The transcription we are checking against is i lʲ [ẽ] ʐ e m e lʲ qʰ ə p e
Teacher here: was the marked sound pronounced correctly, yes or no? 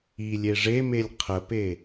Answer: no